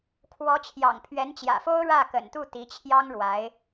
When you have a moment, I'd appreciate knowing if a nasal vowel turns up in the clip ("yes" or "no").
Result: no